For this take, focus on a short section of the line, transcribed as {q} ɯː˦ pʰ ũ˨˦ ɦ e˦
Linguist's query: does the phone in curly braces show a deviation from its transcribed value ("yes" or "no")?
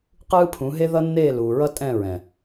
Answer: no